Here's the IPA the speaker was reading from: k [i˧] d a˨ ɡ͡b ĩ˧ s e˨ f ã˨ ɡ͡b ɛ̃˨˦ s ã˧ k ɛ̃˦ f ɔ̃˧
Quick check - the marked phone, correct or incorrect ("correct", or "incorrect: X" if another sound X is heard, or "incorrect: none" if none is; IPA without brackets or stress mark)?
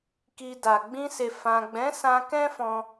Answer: correct